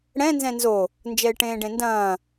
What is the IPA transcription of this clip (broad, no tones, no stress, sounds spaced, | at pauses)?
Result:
ɽ ɛ̃ n z ɛ̃ n z o | n d͡ʒ ɛ ɪ̯ ʈ ẽː ɖ ẽ n d ɐ̃ː